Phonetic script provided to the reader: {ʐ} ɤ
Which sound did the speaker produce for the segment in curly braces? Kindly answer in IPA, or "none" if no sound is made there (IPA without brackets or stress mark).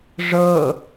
ʐ